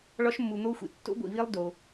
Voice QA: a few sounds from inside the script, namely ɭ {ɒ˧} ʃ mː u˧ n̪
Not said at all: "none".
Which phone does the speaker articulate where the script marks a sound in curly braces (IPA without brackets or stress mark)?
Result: ɒ˦